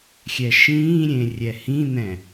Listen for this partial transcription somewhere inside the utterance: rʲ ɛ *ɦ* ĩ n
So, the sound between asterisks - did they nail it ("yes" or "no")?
no